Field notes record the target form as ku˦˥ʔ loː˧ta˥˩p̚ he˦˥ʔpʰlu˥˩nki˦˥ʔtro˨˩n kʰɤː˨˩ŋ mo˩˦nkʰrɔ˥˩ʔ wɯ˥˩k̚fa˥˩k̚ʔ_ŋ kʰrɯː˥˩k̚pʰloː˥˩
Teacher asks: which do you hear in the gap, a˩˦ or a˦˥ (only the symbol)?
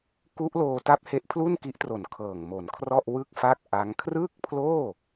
a˦˥